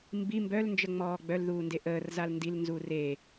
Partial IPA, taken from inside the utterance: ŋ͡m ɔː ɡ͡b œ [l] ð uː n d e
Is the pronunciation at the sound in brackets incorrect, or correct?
correct